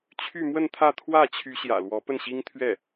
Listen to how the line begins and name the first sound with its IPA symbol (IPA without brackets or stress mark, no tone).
t͡ɕʰ